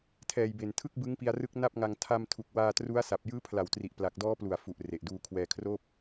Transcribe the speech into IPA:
tʰɛː˨˩jbe˨˩ntʰɯ˥˩k̚bɯ˦˥ŋ pi˧a̯rɯ˦˥k̚ na˥˩p̚ŋa˧ŋ tʰa˧mtʰu˨˩k̚waː˧ tru˦˥a̯sa˨˩p̚ jɯː˦˥pʰla˨˩wtri˨˩ʔ pla˨˩k̚dɔː˦˥plu˨˩a̯ fu˨˩ʔ re˨˩ʔduː˧kʰwɛː˧kʰroː˥˩p̚

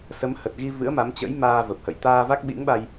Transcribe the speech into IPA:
sə˨˦mhə˨˩t̚ɣi˧ vɨ̰˧˥ə̯ma˨˦mt͡ɕə̰˧˥jmaː˧ və˨˩p̚hə̰˧˨j t̪aː˧ va˦˥k̚ɓḭ˧˥ŋɓa˧j

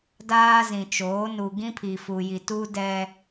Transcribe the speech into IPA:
daː˦zĩ˨t͡ʃoː˨˦ nu˨ ɡĩ˦pʰi˨ fu˨ji˨ tuː˦dɛ˦

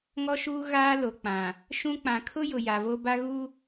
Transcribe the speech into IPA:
ŋɔ˦ʃuː˦ ɣaː˦lo˨k͡pã˨ | ʃũ˦ k͡pã˨kʰʊ˦jʊ˨ ja˨vo˦ ba˦ɣu˦

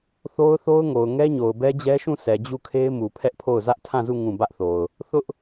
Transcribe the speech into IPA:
θo˦ʊ̯θo˦ʊ̯ŋo˨ʊ̯ ŋɛ˦ɲo˨ʊ̯ bɛ˦d͡ʑɛ˦ʃũ˦˨ sɛ˨d͡ʑu˦˨kʰe˦ɪ̯ mu˨pʰɛ˦ʔpʰo˦˨ʊ̯ zä˦ʔtʰã˦˨zu˦˨ ŋũ˦˨ bä˦ʔθo˨ʊ̯ | θʊ˦ʔ

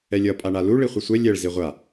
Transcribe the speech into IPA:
ɛlʲʌ pʼaɳalu ɭiχʷɯsʷɛ lʲɛɭ ziʁʷa

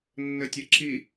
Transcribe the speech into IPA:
nːɘtʲə ǁʰi

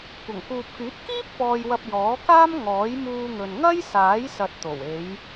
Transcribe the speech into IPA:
kʷɐ˨˩ŋkuː˨p̚kyː˨˥t̚ kiː˥p̚fɔː˨jwɐ˨p̚ jɔː˨˥ kaː˥mŋɔː˨˥jmuː˧ŋɵ˨n ŋɐ˥jsaː˨˥j sɐ˨t̚t̪o˨˩we˨˧j

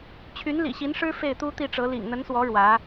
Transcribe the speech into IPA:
t͡ɕʰy˧˥nlḭ˨˩ɕi˧˥nʂɻ̩˥ fe˥˩ɪ̯t̪u˥t̪i˥˩ʈ͡ʂɤ˧˥ lḭ˨˩ŋn̪ə˧˥nswɔ˧˥ ɻwä˧˥

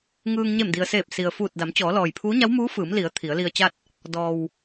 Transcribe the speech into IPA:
ŋɯː˧ŋ ɲe˧˩mdi˩ə̯seː˧˩p̚ si˩ə̯fuː˧˩t̚ da˩˧m t͡ɕɔː˩˧lɔː˩jpʰuː˧˥ ɲa˧˥wmuː˧˥ fɯː˩˧mli˩˧ə̯ t̪ʰi˩˧ə̯li˧ə̯t͡ɕa˥˨t̚ | dɔː˩w

